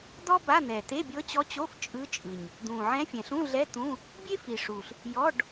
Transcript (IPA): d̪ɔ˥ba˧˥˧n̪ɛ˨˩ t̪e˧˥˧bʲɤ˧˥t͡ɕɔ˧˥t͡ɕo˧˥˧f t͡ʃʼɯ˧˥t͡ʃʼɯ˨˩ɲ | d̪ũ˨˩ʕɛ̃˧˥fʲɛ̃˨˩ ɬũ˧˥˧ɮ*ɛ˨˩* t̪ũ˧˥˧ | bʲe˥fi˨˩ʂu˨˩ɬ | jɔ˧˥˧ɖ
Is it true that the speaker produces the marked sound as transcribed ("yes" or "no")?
no